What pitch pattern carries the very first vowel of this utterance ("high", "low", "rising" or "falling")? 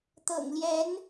low